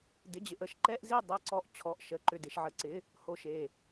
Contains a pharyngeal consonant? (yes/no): yes